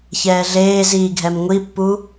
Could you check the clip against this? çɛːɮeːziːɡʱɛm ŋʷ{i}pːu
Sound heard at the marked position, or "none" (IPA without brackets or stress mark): i